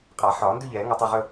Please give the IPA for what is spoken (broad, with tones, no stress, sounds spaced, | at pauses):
qʼ a˨˩˦ ħ ɒː˨˩˦ n d ʉ˥˧ ʎ ɛː˨˩˦ ŋ a˥˧ tˤ a˥˧ ʁ ɵ˥˧